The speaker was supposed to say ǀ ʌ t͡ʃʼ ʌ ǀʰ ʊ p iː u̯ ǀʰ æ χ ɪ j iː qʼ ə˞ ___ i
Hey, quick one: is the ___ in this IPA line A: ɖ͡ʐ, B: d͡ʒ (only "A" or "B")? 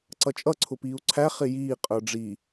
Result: A